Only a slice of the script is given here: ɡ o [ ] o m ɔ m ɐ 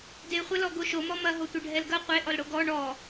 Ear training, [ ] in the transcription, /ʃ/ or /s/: ʃ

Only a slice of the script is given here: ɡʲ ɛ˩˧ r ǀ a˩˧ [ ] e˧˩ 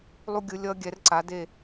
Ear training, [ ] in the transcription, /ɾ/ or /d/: d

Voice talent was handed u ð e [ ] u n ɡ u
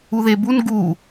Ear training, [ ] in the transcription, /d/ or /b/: b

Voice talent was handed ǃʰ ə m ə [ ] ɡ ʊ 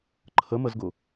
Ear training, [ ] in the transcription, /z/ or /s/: z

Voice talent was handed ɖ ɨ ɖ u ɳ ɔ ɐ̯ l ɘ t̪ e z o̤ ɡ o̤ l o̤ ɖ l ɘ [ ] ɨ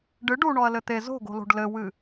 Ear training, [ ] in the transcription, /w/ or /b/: w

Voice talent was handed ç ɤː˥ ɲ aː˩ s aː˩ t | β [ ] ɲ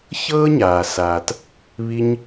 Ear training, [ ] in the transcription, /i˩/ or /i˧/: i˧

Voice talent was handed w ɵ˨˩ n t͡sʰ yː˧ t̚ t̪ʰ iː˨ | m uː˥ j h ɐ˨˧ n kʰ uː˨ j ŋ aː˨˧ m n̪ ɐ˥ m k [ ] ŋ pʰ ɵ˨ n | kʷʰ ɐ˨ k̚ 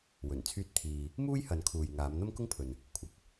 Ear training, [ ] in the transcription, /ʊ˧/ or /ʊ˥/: ʊ˥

